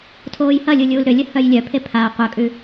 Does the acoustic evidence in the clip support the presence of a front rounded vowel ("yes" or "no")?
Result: yes